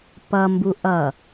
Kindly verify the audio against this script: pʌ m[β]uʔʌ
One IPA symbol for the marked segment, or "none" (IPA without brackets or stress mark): b